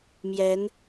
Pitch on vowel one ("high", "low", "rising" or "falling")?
rising